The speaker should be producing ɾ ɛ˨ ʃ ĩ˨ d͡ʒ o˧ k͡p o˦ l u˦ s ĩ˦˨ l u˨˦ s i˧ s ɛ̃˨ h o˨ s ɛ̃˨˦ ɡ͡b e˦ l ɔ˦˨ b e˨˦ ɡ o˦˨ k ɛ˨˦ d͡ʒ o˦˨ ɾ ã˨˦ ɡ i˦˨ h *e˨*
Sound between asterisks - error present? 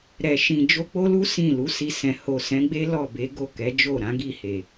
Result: no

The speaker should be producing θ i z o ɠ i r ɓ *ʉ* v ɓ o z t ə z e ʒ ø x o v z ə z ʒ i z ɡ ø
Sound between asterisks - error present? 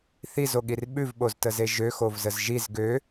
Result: no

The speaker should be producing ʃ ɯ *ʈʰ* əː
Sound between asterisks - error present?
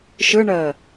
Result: yes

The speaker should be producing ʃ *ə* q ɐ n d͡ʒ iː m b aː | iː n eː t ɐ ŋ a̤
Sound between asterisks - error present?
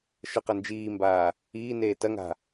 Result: no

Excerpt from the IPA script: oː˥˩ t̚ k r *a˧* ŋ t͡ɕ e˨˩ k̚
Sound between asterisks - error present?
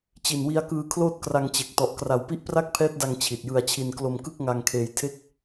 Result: no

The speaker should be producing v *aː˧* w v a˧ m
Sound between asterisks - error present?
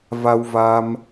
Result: yes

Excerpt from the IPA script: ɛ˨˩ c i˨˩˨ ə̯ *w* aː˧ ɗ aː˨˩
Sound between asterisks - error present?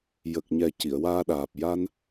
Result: no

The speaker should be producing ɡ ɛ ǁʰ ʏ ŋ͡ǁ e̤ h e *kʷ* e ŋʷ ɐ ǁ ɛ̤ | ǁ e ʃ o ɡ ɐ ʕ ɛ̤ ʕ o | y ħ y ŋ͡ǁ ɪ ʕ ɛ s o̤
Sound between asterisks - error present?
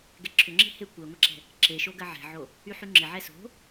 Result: no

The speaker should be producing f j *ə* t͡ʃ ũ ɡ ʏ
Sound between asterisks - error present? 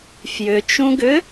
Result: yes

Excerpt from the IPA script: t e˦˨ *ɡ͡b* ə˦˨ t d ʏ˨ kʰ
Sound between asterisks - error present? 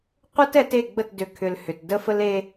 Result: no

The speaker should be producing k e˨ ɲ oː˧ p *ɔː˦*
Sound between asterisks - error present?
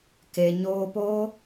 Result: yes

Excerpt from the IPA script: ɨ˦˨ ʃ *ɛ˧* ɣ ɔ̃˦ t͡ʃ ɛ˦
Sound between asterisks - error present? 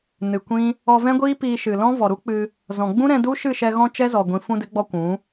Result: no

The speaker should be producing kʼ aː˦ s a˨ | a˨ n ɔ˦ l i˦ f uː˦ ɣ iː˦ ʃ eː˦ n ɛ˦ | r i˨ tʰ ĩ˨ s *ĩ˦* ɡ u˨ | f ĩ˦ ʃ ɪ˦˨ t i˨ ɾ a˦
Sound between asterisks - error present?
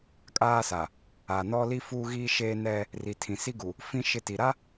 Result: yes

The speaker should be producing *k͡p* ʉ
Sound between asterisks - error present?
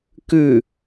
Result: yes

